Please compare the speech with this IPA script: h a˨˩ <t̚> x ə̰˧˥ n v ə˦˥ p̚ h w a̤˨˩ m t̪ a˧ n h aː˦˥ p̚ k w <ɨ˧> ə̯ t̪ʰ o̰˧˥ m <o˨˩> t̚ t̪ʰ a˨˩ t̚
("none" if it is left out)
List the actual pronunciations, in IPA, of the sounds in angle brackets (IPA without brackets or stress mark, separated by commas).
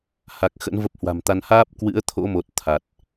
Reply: k̚, ɨ̰˧˥, o˨˩